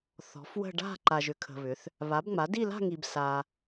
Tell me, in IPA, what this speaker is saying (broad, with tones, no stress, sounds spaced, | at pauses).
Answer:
θ ɔ̤˩˥ f w ə̤˥˧ ɖ a̤˥˧ ǃ a˨ ʒ ʏ˩˥ kʰ ə̤˨ β ʏ˩˥ θ | β a˩˥ b ŋ͡m a˩˥ d i˥˧ l a̤˥˧ ŋ i˨ b s a˨